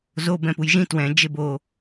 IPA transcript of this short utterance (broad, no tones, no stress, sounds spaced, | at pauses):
z o b ɛ̃ p u j ʒ ĩ t w ɛ̃ d͡ʒ e b o